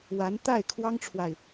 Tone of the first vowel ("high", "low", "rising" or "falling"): rising